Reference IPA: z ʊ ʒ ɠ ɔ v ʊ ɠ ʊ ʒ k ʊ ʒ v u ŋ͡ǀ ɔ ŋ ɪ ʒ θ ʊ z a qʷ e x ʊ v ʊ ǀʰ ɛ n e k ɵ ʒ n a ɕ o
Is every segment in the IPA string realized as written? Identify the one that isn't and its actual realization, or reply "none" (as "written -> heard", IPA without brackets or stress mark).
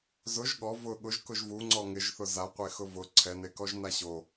ɵ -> ɔ